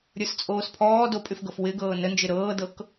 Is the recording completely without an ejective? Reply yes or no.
no